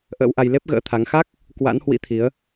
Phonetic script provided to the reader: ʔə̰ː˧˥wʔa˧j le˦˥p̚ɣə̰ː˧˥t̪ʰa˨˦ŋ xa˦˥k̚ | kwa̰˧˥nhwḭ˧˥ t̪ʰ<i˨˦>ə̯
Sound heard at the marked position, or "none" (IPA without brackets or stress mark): i˨˦